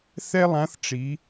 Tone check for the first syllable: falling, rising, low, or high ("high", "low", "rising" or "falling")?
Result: high